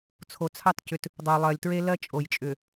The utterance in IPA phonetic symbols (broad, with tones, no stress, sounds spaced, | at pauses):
t͡sʰ o˨ t͡sʰ ɑ˦ t c ʏ˨ t | dˤ u˨ lˠ ɜ˨ lʲ t ɹ e˦ l ɜ˦ t͡ʃʼ o˨ j t͡ʃʼ ʏ˨